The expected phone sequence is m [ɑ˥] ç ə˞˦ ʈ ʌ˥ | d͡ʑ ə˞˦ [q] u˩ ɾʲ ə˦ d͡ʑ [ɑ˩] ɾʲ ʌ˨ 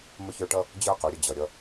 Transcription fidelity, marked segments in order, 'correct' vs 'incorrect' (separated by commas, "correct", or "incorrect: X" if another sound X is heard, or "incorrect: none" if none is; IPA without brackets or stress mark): incorrect: ə˥, correct, incorrect: ʌ˩